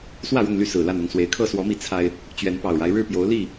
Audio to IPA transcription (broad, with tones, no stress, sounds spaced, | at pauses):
s w ä˥˨ ɻ ʊ˥˨ ŋ l y˥˨ s ɹ̩˨˩ l a˥˨ n ʊ˥˨ ŋ s w e˨˩ ɪ̯ kʰ ɤ˥˨ s w ɔ˨˦ m i˨˦ t͡sʰ a˦ ɪ̯ | t͡ɕ ɥ ɛ˨˦ n p ɑ˨˩ ʊ̯ ɻ a˦ ɪ̯ ɻ ɻ̩˥˨ p j o˨˦ ʊ̯ l i˥˨